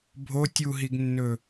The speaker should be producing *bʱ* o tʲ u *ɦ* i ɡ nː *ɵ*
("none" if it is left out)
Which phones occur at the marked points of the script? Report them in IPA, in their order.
bʱ, ɦ, ɵ

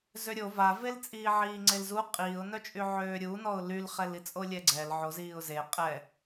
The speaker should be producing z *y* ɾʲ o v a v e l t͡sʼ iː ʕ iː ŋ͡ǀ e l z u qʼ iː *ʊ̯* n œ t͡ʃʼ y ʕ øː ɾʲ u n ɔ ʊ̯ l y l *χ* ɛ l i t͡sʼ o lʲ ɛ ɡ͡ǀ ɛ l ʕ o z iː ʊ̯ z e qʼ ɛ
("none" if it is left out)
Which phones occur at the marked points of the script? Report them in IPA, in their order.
ø, ʊ̯, χ

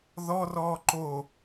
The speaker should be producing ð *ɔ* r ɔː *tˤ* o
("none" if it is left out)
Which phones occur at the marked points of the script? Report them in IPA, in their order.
ɔ, ǃ

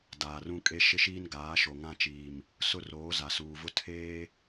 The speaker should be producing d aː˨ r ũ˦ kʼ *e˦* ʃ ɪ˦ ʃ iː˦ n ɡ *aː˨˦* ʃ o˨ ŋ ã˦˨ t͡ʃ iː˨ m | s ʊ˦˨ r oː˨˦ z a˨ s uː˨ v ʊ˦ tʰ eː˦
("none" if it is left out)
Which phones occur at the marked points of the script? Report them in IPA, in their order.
e˦, aː˨˦

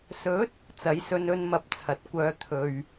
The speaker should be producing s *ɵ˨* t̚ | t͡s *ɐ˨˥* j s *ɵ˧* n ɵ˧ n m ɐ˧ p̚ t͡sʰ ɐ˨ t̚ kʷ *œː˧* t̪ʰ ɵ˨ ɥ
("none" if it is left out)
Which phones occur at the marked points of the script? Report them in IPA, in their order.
ɵ˨˥, ɐ˨˥, ɵ˧, œː˧

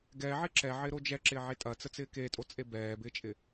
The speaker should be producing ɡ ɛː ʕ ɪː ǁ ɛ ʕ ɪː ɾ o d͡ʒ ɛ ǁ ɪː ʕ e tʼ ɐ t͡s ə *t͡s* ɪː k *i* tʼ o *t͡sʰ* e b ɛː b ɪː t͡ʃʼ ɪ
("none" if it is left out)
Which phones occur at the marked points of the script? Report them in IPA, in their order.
t͡s, e, t͡sʼ

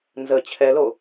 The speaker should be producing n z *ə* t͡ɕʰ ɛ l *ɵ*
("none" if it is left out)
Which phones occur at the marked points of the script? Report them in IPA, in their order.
ə, o

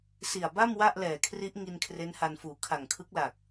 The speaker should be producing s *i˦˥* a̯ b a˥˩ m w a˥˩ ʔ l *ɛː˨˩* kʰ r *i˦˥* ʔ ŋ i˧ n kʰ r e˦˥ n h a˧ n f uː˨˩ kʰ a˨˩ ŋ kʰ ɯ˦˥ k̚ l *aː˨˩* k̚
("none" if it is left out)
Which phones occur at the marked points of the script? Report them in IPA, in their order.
i˨˩, ɛː˨˩, i˦˥, aː˨˩

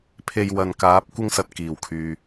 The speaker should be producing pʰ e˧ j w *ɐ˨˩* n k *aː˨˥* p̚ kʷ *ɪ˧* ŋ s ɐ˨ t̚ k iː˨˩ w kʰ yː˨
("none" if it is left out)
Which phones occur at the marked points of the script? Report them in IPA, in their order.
ɐ˨, aː˨˥, ɪ˥

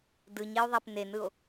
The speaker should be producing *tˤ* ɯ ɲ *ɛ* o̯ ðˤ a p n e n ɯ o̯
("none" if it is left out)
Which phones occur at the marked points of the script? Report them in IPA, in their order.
d, ɛ

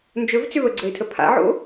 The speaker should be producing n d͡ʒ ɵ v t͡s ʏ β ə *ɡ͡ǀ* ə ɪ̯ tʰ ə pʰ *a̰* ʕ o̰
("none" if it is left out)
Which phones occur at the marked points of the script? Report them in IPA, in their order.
ɡ͡ǀ, a̰

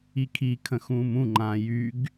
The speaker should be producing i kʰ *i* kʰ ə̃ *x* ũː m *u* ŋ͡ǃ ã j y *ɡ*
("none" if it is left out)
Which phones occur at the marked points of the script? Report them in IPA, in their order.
i, x, ũ, ɡ

